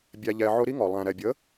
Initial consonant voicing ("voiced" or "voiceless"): voiced